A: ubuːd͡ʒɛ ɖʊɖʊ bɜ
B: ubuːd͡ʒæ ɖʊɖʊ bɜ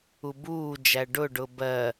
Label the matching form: B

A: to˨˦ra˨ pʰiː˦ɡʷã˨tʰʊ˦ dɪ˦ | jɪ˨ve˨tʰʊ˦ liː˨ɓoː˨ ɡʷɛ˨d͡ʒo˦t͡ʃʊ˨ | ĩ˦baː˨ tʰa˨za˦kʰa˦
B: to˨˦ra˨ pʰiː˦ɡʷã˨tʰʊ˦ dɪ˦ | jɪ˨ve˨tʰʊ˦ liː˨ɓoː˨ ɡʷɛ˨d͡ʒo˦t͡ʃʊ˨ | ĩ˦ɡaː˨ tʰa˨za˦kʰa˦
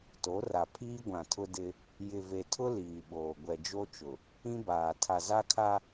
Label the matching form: A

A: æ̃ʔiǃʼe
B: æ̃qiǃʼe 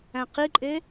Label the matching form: B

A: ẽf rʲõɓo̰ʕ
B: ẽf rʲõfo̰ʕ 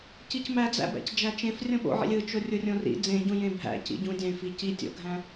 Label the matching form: A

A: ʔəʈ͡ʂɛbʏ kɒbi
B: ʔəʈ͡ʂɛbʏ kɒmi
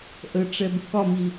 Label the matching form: B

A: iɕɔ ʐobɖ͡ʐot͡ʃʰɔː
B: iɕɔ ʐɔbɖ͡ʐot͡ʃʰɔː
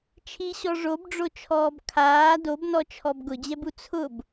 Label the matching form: A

